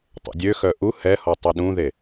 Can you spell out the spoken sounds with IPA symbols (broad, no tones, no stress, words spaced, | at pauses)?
tˤə̰dʲøxœ ʔu hɛhɔ tˤuɗũðe